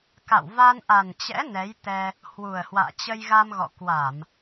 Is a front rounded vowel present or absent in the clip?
absent